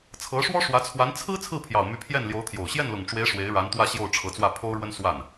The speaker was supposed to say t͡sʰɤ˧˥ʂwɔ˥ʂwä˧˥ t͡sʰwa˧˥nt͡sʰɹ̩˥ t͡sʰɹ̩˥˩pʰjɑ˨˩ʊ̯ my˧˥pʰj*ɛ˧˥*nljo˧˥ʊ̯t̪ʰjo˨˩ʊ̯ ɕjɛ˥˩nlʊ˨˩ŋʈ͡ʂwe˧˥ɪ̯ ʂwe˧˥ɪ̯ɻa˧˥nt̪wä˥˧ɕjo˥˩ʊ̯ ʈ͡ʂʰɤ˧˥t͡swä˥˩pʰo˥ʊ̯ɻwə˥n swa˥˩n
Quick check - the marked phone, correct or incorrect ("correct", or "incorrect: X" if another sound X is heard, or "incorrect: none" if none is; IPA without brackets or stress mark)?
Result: incorrect: ɛ˥˩